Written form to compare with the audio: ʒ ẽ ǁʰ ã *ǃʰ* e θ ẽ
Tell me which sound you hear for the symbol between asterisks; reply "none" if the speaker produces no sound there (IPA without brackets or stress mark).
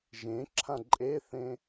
ǃʼ